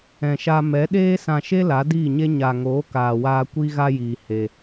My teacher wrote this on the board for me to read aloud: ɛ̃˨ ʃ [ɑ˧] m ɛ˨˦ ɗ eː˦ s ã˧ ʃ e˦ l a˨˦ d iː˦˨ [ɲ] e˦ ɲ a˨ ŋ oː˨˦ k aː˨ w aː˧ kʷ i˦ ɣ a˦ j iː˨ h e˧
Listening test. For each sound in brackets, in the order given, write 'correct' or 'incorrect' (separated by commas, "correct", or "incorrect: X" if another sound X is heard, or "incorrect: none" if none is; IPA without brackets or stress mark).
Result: incorrect: a˧, correct